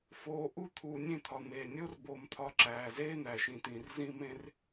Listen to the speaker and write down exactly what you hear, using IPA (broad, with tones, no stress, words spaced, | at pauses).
foː˨ʔu˧ t̪ʰuː˨nʲẽ˦˨t̪ʰɒ˨ n̪eː˨nʲo˦rboː˧m t̪ʰɒ˧ ǁæː˨zeː˦ n̪æ˨ʃĩ˨t̪ĩ˨r zĩ˧mẽ˧r